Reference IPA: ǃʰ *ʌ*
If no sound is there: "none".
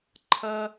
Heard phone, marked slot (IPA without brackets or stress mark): ʌ